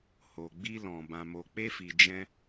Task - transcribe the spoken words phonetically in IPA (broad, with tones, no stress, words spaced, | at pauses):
ho˨ɡ͡bi˧lɔ̃˨ bã˨mo˨k͡pe˧fi˨ d͡ʒɛ̃˧